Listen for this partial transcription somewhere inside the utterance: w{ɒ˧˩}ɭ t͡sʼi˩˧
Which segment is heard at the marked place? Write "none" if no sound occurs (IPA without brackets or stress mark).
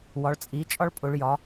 ɒ˩˧